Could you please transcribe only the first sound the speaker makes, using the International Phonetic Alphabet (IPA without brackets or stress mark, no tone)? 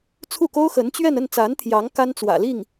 t͡sʰ